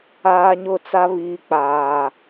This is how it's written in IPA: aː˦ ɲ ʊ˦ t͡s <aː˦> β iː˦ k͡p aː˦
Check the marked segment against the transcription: incorrect: a˦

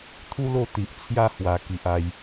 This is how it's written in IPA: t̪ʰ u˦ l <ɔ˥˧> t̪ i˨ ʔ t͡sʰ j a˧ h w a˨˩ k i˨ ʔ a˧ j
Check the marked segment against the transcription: incorrect: o˥˧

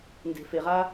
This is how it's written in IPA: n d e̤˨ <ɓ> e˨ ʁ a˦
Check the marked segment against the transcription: incorrect: f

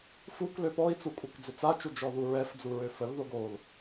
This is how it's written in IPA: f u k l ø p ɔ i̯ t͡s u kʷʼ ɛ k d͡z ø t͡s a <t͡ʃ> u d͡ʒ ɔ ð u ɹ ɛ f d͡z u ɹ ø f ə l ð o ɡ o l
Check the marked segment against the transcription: correct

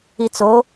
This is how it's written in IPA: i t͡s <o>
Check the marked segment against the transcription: correct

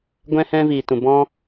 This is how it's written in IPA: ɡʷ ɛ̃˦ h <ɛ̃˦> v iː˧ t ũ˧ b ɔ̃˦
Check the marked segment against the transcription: correct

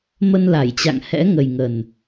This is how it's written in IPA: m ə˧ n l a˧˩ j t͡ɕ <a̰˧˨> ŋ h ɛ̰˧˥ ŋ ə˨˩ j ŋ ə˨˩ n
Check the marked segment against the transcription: correct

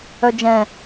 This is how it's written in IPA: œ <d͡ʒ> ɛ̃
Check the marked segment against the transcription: correct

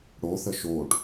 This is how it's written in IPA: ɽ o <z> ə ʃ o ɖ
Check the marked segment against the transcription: incorrect: θ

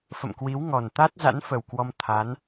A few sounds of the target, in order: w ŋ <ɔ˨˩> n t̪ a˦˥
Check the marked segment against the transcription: correct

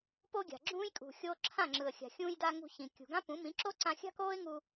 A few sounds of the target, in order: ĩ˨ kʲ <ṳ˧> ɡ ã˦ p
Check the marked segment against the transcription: incorrect: ṳ˨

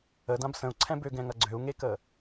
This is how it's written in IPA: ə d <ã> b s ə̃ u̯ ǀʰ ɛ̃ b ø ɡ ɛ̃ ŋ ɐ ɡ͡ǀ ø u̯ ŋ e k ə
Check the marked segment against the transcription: correct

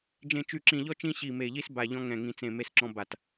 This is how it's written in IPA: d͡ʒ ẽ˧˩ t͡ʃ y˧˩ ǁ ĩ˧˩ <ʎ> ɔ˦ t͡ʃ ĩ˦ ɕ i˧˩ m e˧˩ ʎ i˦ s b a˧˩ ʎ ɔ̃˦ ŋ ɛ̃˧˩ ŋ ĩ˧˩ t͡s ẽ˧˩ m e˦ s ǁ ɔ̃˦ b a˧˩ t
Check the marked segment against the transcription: correct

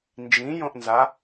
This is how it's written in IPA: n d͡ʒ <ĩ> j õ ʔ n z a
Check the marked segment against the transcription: correct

